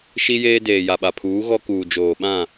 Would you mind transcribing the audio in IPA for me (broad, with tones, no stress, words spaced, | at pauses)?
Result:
ʃi˦jeː˦ deː˨ja˨ɓa˨ pʰuː˨˦ɣɔ˦kuː˨ d͡ʒoː˨ɓã˦˨